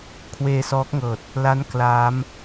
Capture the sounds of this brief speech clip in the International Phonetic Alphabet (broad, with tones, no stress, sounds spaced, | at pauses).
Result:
kʰ w eː˧ s ɔː˦˥ k̚ ŋ ɤː˨˩ t̚ | l a˦˥ n k l aː˦˥ m